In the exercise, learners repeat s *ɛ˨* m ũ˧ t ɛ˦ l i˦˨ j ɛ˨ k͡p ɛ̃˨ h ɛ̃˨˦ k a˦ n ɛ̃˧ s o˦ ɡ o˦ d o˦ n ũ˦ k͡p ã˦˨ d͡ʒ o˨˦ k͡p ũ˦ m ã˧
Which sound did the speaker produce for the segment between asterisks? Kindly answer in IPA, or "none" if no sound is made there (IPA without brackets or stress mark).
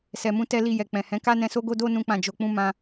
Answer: ɛ˨